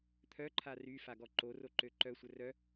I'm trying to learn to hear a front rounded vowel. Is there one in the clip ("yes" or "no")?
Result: yes